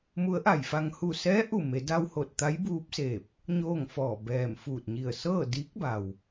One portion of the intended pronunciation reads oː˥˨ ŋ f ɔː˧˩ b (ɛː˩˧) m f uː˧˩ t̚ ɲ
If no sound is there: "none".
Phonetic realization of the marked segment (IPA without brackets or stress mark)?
ɛː˧˩